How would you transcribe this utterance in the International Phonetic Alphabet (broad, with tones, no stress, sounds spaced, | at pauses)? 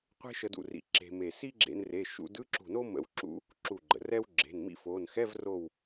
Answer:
qʷ e̤˥ ʃ ə˧ d ṵ˧˩ r ḭ˧ ǁ e̤˧ m e˧˩ s i˥ ɡ͡ǁ ḛ˧ n r e˩˧˩ ʃ ṵ˧ d ɯ˧˥˧ ǁ ṳ˧˩ n o˥ m ə̰˧˩ w ǁ ṵ˥ | ǁ u˧˩ ɡ͡ǃ ə̰˩ r ɛ˥ w ɡ͡ǁ e̤˩˧˩ n m ḭ˥ f o˩˧˩ n x ɛ˧˥˧ v r o˧˩ w